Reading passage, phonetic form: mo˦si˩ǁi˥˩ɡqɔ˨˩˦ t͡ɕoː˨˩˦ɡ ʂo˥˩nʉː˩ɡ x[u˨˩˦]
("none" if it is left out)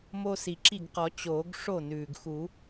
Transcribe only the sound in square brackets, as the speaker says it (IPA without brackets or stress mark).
u˨˩˦